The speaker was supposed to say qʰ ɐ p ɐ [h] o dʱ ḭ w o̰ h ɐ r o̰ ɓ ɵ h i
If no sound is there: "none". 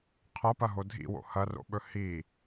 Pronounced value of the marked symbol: ɦ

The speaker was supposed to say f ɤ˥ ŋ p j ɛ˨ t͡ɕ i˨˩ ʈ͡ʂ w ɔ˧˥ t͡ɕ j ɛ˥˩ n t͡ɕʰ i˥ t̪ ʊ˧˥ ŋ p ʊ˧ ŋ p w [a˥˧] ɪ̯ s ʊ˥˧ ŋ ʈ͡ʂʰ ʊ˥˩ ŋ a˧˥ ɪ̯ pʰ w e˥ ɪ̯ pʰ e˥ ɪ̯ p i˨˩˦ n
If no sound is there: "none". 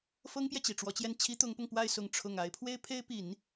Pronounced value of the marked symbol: a˥˧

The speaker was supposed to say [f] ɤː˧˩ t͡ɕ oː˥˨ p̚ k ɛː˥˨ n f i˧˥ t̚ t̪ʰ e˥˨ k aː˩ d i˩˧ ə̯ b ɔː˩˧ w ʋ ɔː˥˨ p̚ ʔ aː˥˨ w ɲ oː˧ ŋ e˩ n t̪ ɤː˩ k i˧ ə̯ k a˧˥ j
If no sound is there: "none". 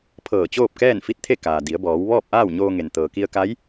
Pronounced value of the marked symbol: pʰ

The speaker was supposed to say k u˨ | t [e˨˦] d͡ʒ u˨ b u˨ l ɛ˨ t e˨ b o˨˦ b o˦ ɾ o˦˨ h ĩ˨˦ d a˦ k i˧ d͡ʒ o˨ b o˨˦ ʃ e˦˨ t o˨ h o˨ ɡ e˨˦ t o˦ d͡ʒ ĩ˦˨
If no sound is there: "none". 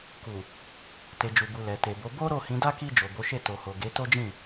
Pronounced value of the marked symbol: e˨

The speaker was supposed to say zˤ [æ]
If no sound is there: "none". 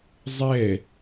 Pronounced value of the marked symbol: ɛ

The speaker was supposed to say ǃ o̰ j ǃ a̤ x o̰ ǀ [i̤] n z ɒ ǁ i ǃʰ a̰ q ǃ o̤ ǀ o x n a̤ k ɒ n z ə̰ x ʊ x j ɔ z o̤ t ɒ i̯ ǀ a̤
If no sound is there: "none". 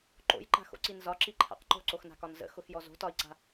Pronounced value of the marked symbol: i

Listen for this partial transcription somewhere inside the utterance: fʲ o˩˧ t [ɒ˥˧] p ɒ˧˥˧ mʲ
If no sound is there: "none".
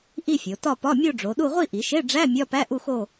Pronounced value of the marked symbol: ɒ˥˧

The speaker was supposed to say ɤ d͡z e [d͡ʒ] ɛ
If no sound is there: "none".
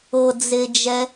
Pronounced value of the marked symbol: d͡ʒ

